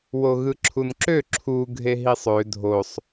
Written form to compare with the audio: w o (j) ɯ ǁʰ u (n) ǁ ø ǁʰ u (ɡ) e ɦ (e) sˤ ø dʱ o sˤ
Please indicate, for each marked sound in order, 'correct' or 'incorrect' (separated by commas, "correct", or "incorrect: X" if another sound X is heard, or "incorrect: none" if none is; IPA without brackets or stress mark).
incorrect: ɣ, correct, incorrect: ɡʱ, incorrect: i